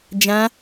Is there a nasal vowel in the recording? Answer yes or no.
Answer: yes